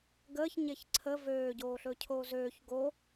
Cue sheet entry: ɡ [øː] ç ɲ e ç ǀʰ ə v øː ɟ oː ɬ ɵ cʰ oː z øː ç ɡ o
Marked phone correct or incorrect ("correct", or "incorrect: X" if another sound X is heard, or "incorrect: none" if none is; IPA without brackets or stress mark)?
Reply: incorrect: əː